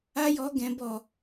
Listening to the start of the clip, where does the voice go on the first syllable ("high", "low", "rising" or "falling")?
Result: high